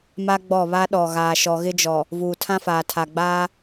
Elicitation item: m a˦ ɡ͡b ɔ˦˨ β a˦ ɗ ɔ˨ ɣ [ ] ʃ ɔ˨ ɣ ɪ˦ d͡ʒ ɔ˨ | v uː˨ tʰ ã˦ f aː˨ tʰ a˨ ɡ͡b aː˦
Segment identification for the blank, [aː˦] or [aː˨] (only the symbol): aː˨